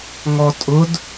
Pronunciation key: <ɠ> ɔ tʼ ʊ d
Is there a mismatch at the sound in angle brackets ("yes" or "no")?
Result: yes